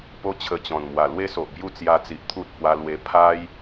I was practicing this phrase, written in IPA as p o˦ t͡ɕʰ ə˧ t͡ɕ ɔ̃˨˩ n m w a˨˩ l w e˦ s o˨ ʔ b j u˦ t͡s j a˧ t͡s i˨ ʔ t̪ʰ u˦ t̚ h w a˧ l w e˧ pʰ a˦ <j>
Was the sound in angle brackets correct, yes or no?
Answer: yes